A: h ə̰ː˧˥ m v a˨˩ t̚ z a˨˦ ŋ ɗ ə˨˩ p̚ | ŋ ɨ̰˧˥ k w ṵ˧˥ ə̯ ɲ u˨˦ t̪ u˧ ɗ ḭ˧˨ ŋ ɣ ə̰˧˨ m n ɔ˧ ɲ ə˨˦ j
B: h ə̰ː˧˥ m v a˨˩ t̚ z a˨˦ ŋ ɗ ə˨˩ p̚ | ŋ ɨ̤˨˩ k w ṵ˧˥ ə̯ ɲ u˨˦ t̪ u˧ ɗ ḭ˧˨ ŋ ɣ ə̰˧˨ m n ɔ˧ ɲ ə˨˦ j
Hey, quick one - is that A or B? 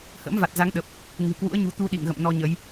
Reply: B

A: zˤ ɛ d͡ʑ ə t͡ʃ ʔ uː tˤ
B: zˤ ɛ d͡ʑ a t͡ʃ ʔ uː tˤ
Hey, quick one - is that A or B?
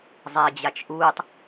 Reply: B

